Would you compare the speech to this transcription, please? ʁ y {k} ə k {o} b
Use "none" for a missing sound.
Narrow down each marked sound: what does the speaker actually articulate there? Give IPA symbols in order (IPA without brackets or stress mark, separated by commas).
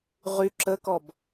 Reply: ǁ, ɔ